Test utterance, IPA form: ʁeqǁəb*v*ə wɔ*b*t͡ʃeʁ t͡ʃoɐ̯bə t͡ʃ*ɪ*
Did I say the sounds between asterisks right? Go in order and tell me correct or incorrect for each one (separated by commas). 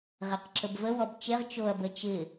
correct, correct, correct